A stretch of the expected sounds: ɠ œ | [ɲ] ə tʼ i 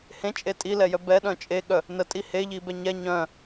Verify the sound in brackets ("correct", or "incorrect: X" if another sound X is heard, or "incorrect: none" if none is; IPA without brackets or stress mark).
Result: incorrect: n